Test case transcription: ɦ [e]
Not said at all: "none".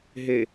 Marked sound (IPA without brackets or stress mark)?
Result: e